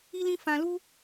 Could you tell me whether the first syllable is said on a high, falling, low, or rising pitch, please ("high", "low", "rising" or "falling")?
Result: high